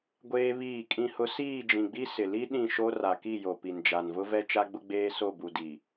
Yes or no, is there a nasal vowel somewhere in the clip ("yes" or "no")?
yes